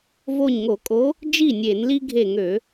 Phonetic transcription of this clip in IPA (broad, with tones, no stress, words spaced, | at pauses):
vo˧˩ɲŋo˧˩˧kʼo˨˦ | d͡ʒi˥˩nʲe˧˩˧nli˦ ɡʱe˧˩ŋø˧˩˧